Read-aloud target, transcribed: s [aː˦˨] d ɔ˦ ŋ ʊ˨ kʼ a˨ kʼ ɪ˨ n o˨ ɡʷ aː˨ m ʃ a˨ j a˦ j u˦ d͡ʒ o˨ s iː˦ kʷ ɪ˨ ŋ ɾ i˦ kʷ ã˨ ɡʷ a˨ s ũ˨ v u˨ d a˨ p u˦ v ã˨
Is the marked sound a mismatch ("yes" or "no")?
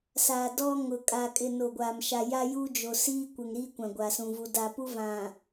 yes